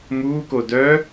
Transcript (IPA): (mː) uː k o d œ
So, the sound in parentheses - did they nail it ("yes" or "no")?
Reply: no